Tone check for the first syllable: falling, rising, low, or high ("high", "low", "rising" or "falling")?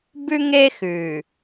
high